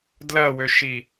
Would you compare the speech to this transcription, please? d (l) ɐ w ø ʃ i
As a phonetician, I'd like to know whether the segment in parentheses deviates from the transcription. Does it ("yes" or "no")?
no